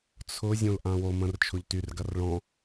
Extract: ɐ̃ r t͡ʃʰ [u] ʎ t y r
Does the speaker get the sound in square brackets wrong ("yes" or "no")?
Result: yes